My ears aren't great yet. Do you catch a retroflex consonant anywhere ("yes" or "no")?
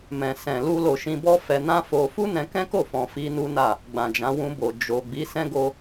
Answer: no